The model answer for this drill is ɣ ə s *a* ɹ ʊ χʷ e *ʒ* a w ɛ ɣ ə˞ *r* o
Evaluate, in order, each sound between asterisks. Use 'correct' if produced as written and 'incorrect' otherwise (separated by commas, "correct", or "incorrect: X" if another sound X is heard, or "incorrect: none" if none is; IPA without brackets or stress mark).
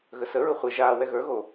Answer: incorrect: ə, correct, incorrect: ɣ